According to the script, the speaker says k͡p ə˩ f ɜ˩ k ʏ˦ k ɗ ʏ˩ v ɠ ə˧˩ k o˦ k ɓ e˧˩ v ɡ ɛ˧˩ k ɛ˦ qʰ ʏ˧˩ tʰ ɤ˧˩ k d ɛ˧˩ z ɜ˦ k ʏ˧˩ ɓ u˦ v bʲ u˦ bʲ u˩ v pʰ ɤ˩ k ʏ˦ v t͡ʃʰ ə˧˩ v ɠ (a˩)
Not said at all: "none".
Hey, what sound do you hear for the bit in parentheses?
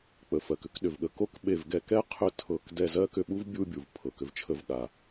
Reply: a˩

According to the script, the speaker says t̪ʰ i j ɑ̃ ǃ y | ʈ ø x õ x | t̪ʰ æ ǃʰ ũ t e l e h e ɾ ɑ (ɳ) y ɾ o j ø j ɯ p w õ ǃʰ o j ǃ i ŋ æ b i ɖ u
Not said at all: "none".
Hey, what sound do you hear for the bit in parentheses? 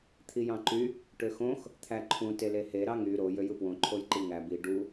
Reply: ŋ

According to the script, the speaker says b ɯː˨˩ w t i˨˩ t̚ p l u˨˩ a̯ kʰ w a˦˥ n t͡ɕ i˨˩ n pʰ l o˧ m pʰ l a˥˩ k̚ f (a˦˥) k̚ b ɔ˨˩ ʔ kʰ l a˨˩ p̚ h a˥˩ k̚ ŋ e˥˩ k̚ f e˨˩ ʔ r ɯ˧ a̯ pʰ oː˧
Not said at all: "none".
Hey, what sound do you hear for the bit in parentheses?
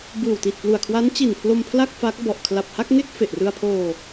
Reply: a˦˥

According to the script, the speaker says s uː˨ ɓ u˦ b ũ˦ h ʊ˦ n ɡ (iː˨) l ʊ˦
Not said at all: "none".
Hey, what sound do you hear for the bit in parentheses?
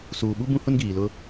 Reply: iː˨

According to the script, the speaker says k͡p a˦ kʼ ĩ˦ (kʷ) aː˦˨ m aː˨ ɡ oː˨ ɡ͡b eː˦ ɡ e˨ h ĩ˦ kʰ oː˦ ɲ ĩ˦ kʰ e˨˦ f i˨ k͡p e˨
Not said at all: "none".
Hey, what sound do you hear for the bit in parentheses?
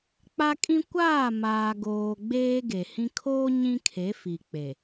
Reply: kʷ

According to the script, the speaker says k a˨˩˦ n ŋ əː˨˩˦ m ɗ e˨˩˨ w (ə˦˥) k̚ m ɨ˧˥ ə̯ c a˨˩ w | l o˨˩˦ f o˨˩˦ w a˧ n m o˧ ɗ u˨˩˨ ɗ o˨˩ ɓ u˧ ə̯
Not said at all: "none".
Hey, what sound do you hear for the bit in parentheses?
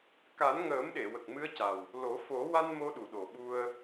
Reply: ə˨˩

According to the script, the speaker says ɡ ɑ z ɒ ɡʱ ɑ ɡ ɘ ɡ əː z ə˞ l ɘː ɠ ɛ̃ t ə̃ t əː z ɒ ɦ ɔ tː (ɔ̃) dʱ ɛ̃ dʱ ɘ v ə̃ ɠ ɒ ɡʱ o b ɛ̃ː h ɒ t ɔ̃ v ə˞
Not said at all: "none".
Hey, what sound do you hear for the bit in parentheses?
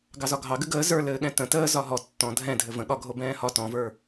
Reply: ɔ̃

